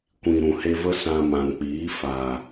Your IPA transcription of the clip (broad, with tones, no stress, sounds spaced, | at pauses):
kʷ ĩ˨ ɾ ũ˨ h e˧ v ə˦ s ã˧ m ã˨ n k͡p iː˨˦ f a˨